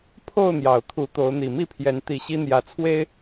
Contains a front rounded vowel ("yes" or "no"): no